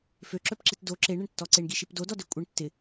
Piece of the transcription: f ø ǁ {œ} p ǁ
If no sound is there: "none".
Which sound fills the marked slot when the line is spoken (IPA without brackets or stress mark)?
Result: œ